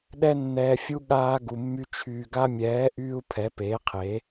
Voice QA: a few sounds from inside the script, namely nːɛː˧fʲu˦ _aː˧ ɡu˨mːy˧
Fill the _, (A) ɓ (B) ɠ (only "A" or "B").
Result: B